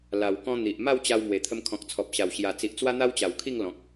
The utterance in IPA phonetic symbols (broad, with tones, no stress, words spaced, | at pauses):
la˨˩wkɔ̃˦n̪i˨ʔ ma˥˧wt͡ɕa˧w mwe˨˩t̪ʰə˧mkʰɔ̃˨k̚ t͡sʰɔ˨p̚ɕa˨˩w ɕja˨˩t͡si˨ʔ t͡swa˦n̪a˦wt͡ɕa˨˩wkʰi˥˧ŋ lɔ̃˨k̚